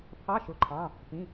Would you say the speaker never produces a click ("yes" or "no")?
no